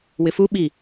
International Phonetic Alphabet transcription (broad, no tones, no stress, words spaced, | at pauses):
wɪfu ɓi